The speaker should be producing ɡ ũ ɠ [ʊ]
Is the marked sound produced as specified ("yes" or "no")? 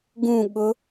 yes